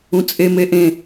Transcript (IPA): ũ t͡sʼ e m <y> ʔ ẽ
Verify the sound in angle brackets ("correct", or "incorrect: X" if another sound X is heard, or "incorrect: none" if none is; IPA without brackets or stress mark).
incorrect: e